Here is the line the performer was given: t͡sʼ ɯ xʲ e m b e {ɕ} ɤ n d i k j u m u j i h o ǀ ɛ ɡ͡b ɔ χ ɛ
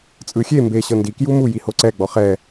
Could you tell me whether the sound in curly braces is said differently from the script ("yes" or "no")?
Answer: no